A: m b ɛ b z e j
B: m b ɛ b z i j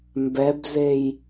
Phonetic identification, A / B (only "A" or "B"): A